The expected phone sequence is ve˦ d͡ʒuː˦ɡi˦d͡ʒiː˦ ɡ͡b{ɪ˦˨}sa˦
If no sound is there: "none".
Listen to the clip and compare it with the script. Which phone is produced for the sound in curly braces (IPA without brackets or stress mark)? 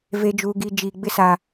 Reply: ɪ˦